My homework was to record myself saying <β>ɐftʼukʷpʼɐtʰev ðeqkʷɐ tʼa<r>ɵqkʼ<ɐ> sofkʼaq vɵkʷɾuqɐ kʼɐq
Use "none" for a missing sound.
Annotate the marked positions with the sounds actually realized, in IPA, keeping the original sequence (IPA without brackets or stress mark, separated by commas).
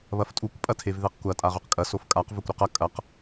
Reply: β, ʁ, ɐ